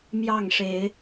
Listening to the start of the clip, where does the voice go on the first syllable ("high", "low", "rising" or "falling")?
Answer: falling